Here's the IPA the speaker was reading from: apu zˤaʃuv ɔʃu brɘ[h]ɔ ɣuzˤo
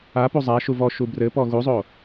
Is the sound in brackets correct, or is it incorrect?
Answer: incorrect